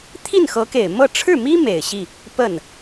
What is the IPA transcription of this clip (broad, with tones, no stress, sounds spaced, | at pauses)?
t̪ʰ i˥˩ n x ɤ˧˥ k e˨˩ ɪ̯ m ɤ˥˧ ʈ͡ʂʰ ɻ̩˥˩ m i˥ m e˨˩ ɪ̯ ɕ i˥˩ | p ə˥˩ n